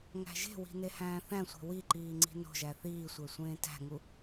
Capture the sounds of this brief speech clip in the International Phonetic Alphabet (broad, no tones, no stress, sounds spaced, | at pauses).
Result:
ŋ æ̤ ʒ e̤ w i̤ n e h æ̃ː θ æ̃ sʷ e̤ w i ǃ iː ŋ͡ǀ i̤ n o̤ ʒ æ θ iː sʷ æ sʷ ẽː t æ̤ ŋ u